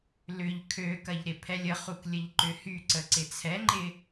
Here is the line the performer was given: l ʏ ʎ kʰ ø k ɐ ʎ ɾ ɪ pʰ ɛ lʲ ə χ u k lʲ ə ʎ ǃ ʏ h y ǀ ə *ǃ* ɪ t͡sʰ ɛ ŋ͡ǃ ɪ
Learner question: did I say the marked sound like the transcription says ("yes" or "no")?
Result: no